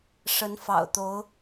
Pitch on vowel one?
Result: rising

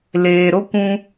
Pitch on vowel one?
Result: low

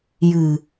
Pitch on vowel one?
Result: low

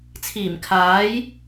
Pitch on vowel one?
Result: low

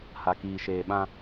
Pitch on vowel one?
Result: low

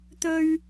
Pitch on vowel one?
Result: high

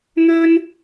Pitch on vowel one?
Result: high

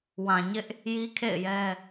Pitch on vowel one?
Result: low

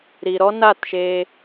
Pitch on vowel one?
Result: low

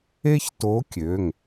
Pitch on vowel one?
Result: high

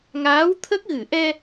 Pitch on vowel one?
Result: rising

